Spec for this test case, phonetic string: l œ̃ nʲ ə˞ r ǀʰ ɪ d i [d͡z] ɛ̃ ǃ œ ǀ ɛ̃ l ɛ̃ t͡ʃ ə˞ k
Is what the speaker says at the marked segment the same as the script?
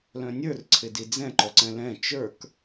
yes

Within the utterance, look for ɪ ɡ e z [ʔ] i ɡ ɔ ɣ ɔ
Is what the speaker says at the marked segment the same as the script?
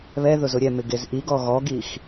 yes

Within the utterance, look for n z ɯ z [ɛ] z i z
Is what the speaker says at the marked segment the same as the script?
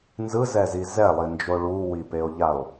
yes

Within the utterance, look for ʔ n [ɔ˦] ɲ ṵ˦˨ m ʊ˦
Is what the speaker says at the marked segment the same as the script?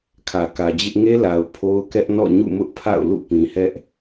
no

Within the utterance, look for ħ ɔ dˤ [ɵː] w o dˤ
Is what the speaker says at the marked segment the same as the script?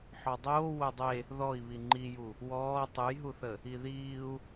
no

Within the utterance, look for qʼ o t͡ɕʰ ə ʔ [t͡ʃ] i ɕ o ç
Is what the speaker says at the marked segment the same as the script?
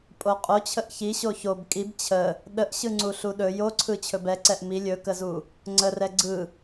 no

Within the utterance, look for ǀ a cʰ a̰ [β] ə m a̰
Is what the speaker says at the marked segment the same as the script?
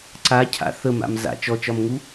no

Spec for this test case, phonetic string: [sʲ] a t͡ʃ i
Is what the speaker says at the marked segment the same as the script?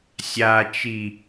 yes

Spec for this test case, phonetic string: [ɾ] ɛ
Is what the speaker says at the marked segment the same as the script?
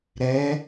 yes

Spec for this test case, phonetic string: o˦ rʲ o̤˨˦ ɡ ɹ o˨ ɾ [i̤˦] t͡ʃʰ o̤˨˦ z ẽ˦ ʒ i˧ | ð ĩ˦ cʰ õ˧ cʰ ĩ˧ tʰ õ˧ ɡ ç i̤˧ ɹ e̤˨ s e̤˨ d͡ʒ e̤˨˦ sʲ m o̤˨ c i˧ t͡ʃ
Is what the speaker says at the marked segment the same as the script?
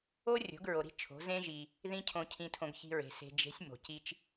yes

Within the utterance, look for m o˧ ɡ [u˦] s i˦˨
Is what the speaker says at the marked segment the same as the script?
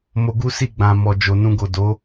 yes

